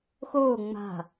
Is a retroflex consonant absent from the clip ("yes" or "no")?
yes